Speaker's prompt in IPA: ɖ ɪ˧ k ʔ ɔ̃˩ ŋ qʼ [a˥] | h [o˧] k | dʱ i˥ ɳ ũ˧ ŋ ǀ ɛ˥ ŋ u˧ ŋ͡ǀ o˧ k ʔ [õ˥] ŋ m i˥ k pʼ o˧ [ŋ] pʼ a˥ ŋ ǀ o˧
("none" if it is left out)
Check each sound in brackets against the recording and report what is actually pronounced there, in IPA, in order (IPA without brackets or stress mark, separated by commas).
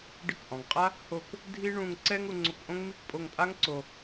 a˥, o˧, õ˥, ŋ